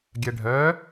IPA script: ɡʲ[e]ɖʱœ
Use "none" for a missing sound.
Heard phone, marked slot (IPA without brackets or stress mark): ɛ